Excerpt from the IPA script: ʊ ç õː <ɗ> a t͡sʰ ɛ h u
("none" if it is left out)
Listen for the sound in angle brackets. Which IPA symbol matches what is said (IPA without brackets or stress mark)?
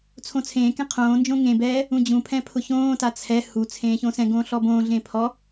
t